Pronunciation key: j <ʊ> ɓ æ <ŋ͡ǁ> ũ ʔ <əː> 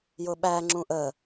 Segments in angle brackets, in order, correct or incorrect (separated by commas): correct, correct, correct